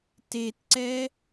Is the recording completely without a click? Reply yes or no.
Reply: no